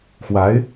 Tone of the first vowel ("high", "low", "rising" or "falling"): rising